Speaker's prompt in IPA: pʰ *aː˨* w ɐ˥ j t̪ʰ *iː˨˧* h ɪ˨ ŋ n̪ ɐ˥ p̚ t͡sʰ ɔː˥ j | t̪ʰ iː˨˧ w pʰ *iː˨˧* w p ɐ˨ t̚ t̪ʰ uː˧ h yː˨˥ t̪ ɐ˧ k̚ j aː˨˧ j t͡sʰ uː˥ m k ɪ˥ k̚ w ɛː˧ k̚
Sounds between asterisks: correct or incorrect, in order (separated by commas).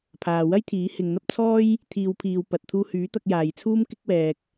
correct, incorrect, correct